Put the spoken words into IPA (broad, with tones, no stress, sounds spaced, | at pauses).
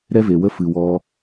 ɾ ɛ˦ v e˨ w ə˦ f ɨ˨ w ɔ˧